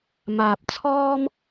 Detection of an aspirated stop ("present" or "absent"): present